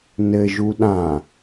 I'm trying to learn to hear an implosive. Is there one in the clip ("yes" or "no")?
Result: yes